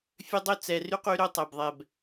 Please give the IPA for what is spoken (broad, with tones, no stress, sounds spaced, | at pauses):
fʲ ø˦ dˤ ɵ˦ t͡s ɛ˨ r y˦ q y˦ ɾ ɵ˦ tˤ ɛ˨ b ðˤ ɛ˨ b